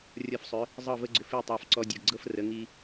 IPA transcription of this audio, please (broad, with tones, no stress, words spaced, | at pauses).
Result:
rʲɔ˧fsˤʏ˩˥ | zˤɤ˥˩və˥ ɡ͡ǀʏ˧fi˥˩tˤɑ˧fǀɔ˧ dʲɤ˩ɡɡ͡ǀɤ˥frə˩˥ ŋi˧